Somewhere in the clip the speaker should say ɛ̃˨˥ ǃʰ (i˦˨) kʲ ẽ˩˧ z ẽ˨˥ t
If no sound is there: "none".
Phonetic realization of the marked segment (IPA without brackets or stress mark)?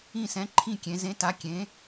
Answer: ĩ˦˨